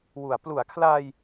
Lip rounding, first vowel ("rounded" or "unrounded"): rounded